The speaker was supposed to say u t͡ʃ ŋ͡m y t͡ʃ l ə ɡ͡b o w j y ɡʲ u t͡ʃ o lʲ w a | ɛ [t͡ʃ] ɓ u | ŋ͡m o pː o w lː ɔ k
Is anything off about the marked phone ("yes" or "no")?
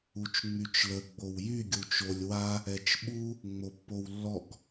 no